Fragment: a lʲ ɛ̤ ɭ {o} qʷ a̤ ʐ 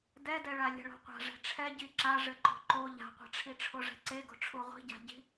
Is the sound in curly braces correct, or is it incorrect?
incorrect